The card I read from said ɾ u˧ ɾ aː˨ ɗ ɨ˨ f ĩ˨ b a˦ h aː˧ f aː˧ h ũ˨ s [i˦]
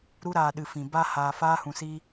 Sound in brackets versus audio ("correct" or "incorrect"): incorrect